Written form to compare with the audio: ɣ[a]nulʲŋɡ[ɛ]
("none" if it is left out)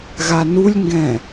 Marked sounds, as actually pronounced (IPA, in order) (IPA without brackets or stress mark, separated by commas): a, ɛ̃